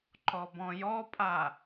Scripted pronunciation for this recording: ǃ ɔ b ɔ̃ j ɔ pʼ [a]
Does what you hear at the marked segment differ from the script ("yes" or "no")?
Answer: no